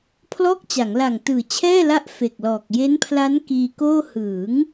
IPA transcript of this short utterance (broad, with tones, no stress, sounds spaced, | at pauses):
pʰ l ɔː˥˩ k̚ t͡ɕ a˩˦ ŋ l a˨˩ ŋ t ɯː˨˩ t͡ɕʰ ɛː˥˩ l a˦˥ ʔ f e˨˩ k̚ l ɔː˨˩ k̚ j e˦˥ n pʰ l a˦˥ n k iː˧ k oː˥˩ h ɯː˩˦ ŋ